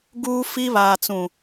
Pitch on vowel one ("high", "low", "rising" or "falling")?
high